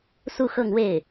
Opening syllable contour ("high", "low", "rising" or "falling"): falling